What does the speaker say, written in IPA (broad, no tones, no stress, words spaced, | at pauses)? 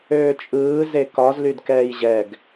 øːt͡ʃʼɯː zekɒz lydkɛːjʑɛɡ